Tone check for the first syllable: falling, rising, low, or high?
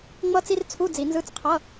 high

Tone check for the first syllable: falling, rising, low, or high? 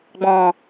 low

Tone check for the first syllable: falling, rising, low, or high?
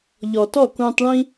low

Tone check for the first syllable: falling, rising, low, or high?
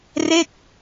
falling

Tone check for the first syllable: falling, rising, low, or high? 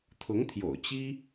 rising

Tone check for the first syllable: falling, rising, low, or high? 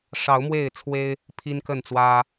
rising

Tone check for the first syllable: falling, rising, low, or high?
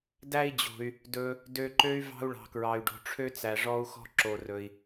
high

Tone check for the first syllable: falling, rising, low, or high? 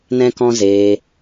high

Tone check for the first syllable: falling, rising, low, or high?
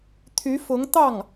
rising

